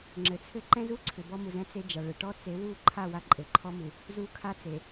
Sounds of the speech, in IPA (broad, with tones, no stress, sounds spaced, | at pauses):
ŋ͡ǁ ɘ˨ t͡sʰ ɘ˦˨ ǃ ɛ̃˦ z u˦ ǀʰ ʏ˨ b ɔ˦ m u˨ z ɛ̃˦ t͡s e˦ d͡ʒ a˨ ɭ ɘ˨ ʈ ɔ˦ t͡s e˨˦ w u˦˨ ǃʰ a˦˨ w a˦ ǃʼ ɘ˨ ǃʰ ɔ˦ m u˨ | z u˦ kʰ a˦ t͡s e˨